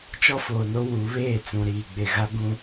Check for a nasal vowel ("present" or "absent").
present